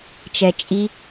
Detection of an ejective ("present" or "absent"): present